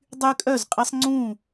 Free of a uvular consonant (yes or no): no